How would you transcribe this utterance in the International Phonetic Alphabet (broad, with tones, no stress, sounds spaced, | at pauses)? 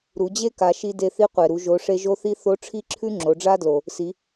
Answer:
ɾ u˩˧ d͡ʑ e˥ k a˩˧ ʃ i˧ d e˧ θ i˧˥ qʷ e˩ ɾ u˩˧ ʒ o˩˧ ʂ e˧ ʒ o˧˥ θ i˧˥ θ o˧˥ ʈ͡ʂʰ i˥ ǁʰ ʉ˥ ŋ͡ǁ o˩˧ ɖ͡ʐ a˥ d l o˩ | s i˩˧